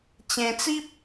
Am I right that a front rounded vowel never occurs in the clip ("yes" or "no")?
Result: yes